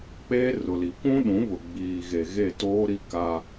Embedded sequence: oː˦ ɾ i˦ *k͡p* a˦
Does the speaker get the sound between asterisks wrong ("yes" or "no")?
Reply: yes